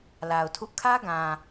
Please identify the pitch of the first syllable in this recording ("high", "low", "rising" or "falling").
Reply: low